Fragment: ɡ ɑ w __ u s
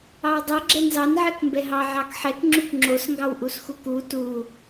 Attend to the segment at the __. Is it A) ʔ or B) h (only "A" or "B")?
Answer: A